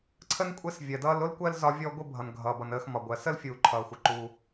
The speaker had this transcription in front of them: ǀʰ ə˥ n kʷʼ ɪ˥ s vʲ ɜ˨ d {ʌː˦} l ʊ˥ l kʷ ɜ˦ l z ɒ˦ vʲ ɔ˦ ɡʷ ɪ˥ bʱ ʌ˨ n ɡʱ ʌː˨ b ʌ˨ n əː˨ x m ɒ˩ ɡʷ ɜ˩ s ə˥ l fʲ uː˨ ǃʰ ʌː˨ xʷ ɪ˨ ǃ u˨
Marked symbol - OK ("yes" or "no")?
yes